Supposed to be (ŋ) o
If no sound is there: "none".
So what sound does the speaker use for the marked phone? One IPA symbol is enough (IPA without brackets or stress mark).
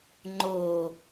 ŋ͡ǃ